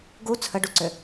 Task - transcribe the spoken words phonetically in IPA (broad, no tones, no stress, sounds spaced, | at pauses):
ɡ u t͡sʰ ə ɖ u ǀ ʏ